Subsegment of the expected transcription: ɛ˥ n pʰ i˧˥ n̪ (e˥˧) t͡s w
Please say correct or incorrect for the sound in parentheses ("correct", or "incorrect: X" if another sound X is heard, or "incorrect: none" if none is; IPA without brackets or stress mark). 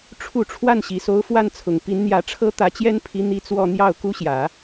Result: incorrect: i˥˧